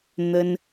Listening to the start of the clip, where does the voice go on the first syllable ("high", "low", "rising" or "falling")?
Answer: high